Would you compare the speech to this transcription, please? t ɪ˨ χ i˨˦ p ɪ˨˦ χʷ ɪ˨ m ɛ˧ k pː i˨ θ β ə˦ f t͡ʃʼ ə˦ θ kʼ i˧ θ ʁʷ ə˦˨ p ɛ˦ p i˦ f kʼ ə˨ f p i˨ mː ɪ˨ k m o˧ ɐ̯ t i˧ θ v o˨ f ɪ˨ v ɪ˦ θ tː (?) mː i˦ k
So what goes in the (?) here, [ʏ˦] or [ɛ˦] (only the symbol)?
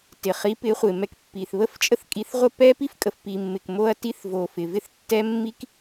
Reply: ɛ˦